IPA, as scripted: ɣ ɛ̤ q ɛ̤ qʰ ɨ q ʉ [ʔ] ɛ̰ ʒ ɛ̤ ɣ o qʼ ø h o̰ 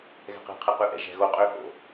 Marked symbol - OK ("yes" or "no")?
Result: yes